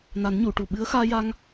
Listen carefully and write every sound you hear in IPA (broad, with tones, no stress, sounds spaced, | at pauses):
n a˨˩˦ n ɲ u˨˩˨ ʈ u˨˩ ɓ ɨ˧˥ ə̯ x aː˧ j a˧ ŋ